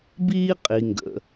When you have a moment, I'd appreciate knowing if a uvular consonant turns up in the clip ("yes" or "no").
yes